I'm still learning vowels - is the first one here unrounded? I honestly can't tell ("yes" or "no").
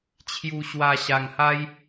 no